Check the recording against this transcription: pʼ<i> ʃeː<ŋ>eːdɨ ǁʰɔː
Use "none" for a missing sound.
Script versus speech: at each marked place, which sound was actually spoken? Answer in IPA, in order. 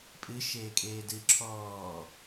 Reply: ɨ, kʼ

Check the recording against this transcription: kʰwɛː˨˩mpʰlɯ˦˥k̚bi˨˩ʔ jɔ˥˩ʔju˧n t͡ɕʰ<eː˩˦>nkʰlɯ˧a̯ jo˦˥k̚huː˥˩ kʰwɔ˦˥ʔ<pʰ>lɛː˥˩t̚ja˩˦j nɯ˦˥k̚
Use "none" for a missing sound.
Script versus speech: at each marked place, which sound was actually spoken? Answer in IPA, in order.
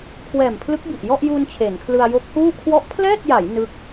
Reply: eː˩˦, pʰ

